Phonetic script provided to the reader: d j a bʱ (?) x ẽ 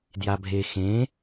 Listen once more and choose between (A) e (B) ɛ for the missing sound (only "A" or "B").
A